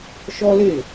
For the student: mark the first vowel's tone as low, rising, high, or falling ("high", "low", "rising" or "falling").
high